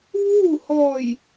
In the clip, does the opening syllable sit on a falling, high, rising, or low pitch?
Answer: falling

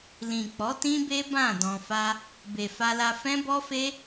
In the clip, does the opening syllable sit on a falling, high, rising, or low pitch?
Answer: low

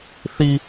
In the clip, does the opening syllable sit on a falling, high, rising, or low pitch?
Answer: low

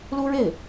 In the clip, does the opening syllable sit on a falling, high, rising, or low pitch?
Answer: high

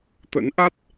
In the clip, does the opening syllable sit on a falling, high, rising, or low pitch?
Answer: rising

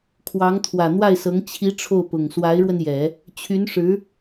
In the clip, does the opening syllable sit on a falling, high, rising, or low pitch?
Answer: rising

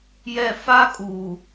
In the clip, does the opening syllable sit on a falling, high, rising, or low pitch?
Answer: falling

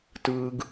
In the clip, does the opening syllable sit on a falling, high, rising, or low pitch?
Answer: high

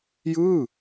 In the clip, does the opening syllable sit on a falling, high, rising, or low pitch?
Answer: falling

